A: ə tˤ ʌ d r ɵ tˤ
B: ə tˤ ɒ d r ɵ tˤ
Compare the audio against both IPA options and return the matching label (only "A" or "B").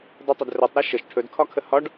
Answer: A